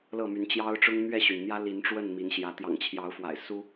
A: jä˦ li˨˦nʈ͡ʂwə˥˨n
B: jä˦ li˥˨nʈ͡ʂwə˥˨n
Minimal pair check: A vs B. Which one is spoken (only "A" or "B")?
A